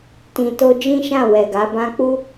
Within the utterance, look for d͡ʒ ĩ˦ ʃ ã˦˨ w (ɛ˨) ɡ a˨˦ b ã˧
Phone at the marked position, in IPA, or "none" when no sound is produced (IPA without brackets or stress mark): ɛ˨